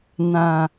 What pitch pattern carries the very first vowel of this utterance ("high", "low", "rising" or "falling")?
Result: low